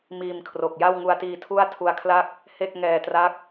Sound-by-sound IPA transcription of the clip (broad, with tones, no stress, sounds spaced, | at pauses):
m iː˧ m kʰ r o˨˩ k̚ j a˥˩ w ŋ u˧ a̯ t iː˧ tʰ u˥˩ a̯ tʰ u˦˥ a̯ kʰ l a˥˩ k̚ | h e˥˩ k̚ ŋ ɛː˧ t r a˦˥ k̚